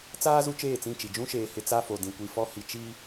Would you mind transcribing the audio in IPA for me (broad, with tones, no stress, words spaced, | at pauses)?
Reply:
t͡saː˦ zu˦t͡ʃeː˦˨t͡sĩ˦˨t͡ʃi˨ d͡ʒũ˦ʃeː˨ hɪ˦ t͡sa˦fo˨ dĩ˨kʷi˨fɔ˦ hi˨t͡ʃi˦